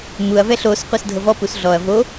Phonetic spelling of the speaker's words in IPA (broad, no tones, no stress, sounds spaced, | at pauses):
m u ɐ̯ v ɛ ɬ o s qʷ ɛ s dʱ ɤ v ɔ p u s ɮ ɔ ɐ̯ v o